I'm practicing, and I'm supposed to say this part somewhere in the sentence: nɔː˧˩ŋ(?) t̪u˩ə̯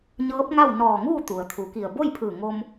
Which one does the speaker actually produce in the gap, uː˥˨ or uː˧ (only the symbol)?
uː˥˨